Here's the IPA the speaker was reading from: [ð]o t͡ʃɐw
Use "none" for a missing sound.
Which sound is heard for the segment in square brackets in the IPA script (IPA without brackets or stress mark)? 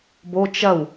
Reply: b